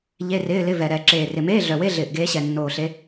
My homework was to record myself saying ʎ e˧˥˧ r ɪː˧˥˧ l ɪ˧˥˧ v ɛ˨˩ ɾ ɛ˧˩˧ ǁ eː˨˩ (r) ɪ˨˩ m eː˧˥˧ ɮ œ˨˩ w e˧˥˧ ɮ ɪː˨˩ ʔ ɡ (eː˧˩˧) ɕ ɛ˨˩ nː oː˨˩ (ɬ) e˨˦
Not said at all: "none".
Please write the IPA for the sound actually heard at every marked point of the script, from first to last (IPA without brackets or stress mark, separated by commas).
r, eː˨˦, ɬ